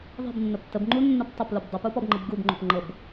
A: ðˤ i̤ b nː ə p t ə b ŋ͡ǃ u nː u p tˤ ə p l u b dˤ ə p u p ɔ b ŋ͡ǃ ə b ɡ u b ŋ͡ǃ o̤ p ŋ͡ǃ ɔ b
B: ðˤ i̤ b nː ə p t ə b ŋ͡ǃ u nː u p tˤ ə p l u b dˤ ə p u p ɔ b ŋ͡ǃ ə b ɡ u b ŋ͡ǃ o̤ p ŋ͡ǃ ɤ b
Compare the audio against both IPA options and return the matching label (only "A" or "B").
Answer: B